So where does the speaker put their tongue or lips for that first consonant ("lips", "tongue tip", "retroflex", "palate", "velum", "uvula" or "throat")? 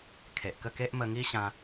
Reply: velum